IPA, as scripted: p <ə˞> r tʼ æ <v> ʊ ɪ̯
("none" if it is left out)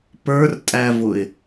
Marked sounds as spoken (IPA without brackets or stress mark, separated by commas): ə˞, v